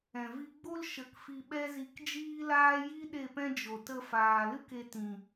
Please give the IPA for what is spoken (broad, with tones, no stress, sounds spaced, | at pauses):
ɛ̃˨ v i˧ ɡ͡b o˦ l ʃ ə˧ k f i˧ ɓ ɛ˦ z i˧ k d͡ʒ iː˦ l aː˦ j i˦ ɗ e˦˨ p ɛ̃˦ d͡ʒ o˨ t ə˧ f aː˨ l ɨ˦ k e˧ t ĩ˨